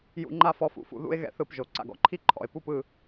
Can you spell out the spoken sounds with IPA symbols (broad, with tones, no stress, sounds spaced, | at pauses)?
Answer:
j ṵ˧ ŋ͡ǃ a˥˧ f ɔ˧ f ṵ˩˧ f ṵ˧ ð ṵ˥ e̯ ɣ ɛ̰˧ θ ɯ˧ p ʒ o˩˧ ǀ a̰˧ ɡ ɔ̰˧ ǃʰ i˥ ǃʰ ɔ̰˩˧ e̯ p u˥˧ p ɯ˥˧